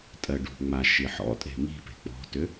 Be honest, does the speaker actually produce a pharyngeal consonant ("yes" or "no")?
yes